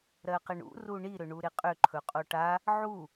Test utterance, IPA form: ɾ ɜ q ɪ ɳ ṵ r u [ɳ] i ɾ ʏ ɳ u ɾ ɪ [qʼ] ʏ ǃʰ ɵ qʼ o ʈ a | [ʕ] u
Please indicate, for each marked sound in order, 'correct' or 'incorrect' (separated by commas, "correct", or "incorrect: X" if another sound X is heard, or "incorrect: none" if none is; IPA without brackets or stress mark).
correct, correct, correct